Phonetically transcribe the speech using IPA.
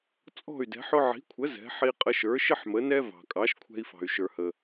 t͡sʼ ɔ̤˥˩ y̯ d ɛ̤˩˥ ħ ʊ˧ ʕ i̤˩˥ kʷʰ ə˩˥ z ɛ̤˩˥ ħ i˧ qʼ ə˧ ʃ ə˞˩˥ ʃ ɪ˥ ħ m ə˩˥ n ɛ˥ v ɑ̤˩ kʼ ɑ˩˥ ʃ kʷʰ ɛ̤˧ i̯ f ɑ̤˩ y̯ ʃ ə˞˩ h ə˩

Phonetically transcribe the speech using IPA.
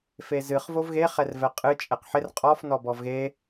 f e z ɨ χ v o v ɣ e χ ɛ r v ɛ qʼ ɨ t͡ʃʼ ɛ q ħ ɪ r qʼ ɔ f n ɔ b ɔ v ɣ e

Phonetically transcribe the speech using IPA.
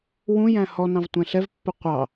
w ũ j æ̃ h ɔ n ɑ̃ v tʷ ɛ̃ ɬ ɛ v pː ə qʷ ɑ

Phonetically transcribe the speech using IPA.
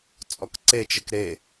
t͡sʼ ɔ k ǀ e t͡ʃ ɘ k ɾ e

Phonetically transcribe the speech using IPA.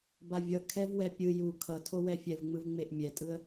b a vʲ ʌ kʰ ɛ v w ɛ pʲ ɯ j u kʰ ʌ tʰ o w ɛ fʲ ɛ v ŋ͡m ɯ v ŋ͡m e ʔ mʲ ɛ tʼ ɯ ə̯

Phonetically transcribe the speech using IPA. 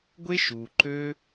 ɡʷ e˦ ʃ u˨ ǃ ø˦

